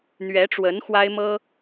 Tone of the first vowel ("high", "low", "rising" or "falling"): rising